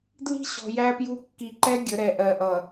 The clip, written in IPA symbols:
dli̤˦ɕɔ̤˨ jæ˦pju˦ kːi˨ǃɛ˦ ɡʲə˨˦ɾɛ˨ ʔɜ˨ʔʌ˨

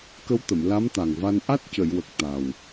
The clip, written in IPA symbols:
kə˧˥wt̪ə˨˩˨m la˧˥mt̪a˨˩ŋva˧n ʔa˦˥t̚cə˨˩˨jwə˨˩k̚ t̪a˨˩w

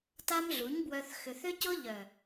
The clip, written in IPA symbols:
ta˦mɮu˨˦ɲbwœ˧θ xʏ˨θʏ˦cʊ˦ ʎœ˨

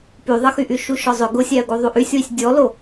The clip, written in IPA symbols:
pyðˤəxyʔy ʃuʃɔzˤʏ ɡʊsʲæə̯ɡu ðˤuʔysʲwisʲ dʲɔlo

